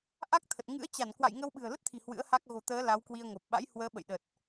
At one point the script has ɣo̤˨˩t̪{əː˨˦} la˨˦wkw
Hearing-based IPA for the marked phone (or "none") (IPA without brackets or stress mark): əː˨˦